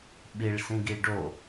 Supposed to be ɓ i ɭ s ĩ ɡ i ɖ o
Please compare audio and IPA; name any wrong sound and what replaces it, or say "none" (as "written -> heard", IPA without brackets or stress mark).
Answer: none